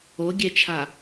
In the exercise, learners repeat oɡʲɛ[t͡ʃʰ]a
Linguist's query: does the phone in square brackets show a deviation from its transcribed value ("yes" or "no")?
no